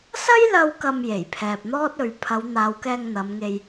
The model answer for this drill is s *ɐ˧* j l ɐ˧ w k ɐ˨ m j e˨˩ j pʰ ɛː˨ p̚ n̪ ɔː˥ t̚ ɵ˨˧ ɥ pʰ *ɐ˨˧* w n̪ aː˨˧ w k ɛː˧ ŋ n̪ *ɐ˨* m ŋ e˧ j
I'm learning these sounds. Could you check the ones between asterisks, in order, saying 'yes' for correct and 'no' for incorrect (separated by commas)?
no, yes, no